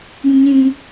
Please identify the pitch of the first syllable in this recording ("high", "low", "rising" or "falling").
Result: high